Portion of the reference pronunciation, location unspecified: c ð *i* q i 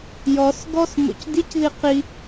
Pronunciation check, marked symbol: correct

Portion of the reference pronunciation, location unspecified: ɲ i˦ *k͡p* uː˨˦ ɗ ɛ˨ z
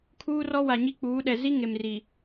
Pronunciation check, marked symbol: correct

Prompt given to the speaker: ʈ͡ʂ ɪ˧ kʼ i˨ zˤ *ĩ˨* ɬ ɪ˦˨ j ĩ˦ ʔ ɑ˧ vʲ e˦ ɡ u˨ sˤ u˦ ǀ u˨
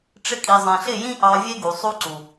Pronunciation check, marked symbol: incorrect: ẽ˨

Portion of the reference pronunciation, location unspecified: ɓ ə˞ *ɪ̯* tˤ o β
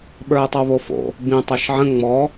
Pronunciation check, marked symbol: correct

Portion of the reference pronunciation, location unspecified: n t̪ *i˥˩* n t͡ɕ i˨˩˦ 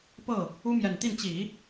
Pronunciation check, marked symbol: correct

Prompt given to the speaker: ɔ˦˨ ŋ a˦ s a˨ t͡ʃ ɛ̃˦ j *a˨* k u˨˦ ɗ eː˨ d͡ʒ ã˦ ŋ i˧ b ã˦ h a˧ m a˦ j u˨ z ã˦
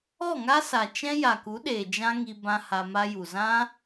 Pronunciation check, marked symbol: correct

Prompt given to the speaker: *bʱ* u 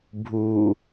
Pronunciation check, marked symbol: correct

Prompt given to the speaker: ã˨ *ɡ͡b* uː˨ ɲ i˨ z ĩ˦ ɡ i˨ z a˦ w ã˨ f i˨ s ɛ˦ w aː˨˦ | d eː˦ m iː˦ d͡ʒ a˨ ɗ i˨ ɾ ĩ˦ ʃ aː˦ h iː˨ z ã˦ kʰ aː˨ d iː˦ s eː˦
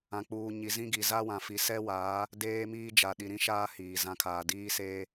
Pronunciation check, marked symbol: incorrect: k͡p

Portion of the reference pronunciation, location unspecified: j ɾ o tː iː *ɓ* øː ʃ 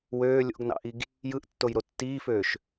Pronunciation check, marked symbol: incorrect: f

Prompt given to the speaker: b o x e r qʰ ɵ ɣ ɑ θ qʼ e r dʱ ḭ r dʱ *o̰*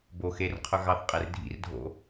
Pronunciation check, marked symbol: correct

